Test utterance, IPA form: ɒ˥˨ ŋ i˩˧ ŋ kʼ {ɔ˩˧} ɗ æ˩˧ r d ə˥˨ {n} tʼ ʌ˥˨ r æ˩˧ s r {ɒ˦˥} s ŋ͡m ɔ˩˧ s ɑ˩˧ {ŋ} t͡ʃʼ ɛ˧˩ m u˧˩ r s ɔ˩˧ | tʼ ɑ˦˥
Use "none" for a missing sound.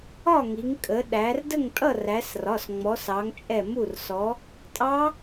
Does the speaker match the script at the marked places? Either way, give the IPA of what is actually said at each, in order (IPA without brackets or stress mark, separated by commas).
ə˩˧, ŋ, ɒ˩˧˩, ŋ